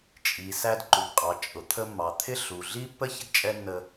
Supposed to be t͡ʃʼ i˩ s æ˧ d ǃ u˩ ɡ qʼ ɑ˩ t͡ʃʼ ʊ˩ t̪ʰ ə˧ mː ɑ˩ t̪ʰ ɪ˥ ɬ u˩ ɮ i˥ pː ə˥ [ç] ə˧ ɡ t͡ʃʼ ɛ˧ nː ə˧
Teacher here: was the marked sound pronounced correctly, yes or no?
yes